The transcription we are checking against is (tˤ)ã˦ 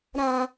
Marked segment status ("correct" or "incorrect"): incorrect